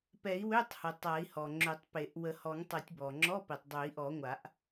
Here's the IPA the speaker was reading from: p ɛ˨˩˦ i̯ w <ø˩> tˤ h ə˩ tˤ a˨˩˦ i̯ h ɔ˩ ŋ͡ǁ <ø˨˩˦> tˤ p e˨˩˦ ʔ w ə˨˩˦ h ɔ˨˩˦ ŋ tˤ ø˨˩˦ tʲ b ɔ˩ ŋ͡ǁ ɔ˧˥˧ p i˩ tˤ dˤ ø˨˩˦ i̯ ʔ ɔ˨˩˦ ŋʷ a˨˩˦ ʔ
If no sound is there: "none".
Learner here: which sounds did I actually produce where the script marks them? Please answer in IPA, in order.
ø˧˥˧, ø˨˩˦

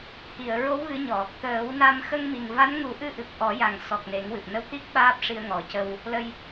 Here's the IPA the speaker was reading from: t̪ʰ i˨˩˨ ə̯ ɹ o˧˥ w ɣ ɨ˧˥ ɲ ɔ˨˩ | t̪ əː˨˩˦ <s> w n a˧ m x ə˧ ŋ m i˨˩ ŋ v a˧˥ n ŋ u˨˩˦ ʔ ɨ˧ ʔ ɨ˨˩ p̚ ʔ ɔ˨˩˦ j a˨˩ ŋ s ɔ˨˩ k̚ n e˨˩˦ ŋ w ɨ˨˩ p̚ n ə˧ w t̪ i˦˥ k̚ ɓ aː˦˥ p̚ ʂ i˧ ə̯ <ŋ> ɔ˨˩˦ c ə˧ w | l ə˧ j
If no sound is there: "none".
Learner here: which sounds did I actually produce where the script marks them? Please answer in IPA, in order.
none, ŋ

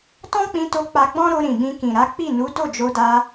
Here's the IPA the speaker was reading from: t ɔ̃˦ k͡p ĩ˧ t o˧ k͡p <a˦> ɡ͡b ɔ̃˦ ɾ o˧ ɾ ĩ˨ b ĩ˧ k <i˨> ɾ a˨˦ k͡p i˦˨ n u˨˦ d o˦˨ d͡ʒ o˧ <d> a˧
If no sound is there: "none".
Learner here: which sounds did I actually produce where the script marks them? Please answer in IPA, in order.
a˧, ĩ˨, d

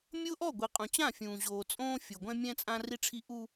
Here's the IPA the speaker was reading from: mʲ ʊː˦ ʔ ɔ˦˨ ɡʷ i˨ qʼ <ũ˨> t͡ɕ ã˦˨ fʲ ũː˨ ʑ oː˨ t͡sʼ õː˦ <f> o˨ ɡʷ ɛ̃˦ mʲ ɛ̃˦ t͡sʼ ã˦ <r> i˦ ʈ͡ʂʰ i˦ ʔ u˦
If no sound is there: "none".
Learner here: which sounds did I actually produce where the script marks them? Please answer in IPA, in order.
ũ˨, fʲ, r

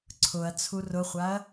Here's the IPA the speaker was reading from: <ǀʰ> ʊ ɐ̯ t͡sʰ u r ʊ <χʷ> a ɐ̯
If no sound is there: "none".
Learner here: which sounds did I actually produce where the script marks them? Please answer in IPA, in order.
ǀʰ, χʷ

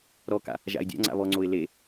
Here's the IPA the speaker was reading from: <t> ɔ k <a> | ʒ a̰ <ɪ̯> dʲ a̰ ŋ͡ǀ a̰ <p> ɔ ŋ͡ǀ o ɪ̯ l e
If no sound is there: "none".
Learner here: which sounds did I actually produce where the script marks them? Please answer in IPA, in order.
ɾ, a̰, ɪ̯, β

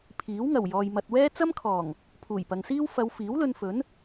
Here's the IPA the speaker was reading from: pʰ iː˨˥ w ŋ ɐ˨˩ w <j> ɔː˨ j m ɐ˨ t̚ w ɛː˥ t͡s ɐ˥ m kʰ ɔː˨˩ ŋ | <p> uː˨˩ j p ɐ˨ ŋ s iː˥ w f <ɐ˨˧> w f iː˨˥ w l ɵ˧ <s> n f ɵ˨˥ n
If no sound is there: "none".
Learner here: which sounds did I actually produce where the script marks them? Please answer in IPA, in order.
j, pʰ, ɐ˨˧, none

